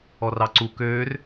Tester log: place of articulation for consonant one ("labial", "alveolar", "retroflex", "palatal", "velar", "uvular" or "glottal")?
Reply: alveolar